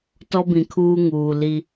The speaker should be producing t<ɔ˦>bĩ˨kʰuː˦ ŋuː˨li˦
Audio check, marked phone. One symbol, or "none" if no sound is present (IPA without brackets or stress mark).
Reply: ɔ˦